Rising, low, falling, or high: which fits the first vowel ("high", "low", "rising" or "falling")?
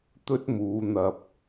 high